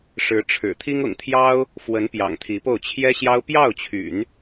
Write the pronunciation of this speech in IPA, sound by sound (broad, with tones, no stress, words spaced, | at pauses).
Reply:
ʂɻ̩˧˥ ʈ͡ʂʰɻ̩˨˩ t̪ʰi˥ŋʊ̰˨˩ŋt̪ʰjɑ˥ʊ̯ | fwə˧˥n pjɑ̰˨˩ŋt̪ʰi˧˥po˥˩ʊ̯ t͡ɕʰjɛ˥ɕjɑ˥ʊ̯ pjɑ˥˩ʊ̯t͡ɕʰy̰˨˩˦n